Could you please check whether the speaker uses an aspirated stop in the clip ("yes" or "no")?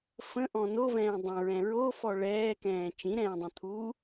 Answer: yes